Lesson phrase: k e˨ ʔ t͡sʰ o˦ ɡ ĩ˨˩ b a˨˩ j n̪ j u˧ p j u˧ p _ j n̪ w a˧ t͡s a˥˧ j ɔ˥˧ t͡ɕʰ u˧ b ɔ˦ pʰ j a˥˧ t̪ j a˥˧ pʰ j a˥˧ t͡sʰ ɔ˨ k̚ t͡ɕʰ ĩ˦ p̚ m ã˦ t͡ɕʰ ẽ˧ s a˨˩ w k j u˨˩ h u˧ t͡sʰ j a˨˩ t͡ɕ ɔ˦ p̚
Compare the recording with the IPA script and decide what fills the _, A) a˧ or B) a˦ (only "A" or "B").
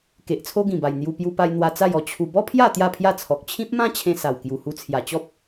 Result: A